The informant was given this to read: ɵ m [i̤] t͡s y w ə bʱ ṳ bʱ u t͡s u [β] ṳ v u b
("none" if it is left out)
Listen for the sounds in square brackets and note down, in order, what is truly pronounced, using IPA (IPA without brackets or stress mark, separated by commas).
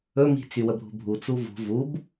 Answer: i̤, v